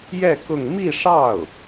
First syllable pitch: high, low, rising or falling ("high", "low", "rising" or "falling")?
falling